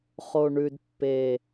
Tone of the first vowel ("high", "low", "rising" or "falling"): low